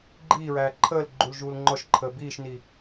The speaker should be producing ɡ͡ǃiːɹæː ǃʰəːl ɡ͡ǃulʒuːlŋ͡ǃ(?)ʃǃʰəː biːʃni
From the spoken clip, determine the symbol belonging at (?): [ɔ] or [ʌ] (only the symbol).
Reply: ɔ